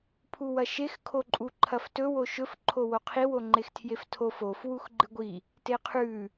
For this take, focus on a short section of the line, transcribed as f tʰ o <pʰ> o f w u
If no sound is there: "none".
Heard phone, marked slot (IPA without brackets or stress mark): f